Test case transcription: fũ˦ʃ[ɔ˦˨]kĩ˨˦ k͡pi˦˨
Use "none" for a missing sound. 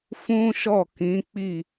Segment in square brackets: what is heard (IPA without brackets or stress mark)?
ɔ˦˨